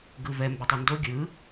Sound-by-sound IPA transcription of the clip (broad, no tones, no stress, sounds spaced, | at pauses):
ɡ ɯ v ɛ m b e tˤ u n d o ɡʲ ɯ